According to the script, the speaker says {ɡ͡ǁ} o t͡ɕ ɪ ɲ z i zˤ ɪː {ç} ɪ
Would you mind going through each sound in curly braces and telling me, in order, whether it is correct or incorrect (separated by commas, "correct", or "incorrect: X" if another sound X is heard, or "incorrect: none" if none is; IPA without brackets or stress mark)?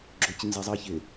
correct, correct